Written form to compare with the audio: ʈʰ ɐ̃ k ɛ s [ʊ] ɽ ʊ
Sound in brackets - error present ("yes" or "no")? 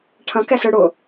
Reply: yes